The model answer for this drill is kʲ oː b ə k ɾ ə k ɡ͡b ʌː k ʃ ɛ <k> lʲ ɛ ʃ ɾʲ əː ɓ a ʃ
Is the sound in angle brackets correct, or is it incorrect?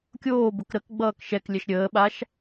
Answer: correct